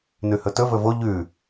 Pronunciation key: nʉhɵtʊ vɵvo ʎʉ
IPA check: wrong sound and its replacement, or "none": ʊ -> ɵ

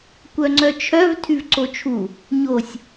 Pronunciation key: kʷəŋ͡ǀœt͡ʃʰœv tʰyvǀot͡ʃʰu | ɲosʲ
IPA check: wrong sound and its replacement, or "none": ə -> œ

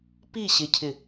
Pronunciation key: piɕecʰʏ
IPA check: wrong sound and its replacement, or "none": ʏ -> ɪ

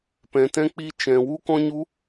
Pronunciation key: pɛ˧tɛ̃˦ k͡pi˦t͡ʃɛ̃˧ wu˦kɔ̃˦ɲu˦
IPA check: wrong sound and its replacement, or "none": ɛ˧ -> ɛ̃˧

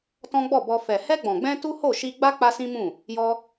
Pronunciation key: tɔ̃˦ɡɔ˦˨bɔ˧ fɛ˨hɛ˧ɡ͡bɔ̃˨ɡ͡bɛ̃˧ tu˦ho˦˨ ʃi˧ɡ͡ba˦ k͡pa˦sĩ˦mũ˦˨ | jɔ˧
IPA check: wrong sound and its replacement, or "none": ɡ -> ɡ͡b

